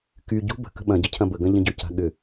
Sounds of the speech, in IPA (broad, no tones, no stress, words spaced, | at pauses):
ky ɟṳ bə̤kə̤ ɓɐ̃ɟə cʰɐ̃bəɡɐ̃ ʎə̃ɟʏca̤ ɠʏ